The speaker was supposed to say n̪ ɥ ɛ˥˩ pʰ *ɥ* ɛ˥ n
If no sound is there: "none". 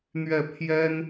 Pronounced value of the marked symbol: j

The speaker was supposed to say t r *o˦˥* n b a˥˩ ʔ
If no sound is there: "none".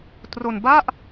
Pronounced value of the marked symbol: o˧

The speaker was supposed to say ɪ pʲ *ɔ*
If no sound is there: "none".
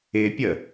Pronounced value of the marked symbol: ə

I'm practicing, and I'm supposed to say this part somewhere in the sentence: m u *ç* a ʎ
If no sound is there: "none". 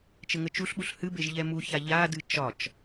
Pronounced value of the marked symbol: ç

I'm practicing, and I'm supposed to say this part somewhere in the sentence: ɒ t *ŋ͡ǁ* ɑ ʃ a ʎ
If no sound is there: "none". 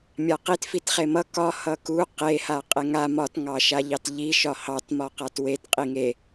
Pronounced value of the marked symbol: ŋ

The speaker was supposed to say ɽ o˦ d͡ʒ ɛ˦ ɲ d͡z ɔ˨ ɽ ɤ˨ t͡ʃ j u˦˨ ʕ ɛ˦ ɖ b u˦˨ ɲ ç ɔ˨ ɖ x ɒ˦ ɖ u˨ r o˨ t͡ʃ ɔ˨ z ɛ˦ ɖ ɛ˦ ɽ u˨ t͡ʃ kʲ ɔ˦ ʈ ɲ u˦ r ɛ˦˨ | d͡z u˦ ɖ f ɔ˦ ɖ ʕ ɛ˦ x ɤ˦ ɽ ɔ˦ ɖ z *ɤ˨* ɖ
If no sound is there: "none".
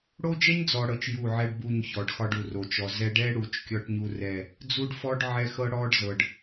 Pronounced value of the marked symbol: ɤ˨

